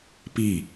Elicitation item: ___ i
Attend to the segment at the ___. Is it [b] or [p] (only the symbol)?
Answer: p